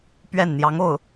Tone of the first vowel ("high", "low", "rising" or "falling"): falling